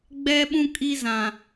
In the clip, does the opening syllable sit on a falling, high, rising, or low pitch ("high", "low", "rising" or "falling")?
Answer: high